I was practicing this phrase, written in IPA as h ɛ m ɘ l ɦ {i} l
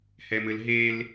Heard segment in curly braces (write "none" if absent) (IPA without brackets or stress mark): e